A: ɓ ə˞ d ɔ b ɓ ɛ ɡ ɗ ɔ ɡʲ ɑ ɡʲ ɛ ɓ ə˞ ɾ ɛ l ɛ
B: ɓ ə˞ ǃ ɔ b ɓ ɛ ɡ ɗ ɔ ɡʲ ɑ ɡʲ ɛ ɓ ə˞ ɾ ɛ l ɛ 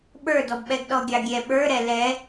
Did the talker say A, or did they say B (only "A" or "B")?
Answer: A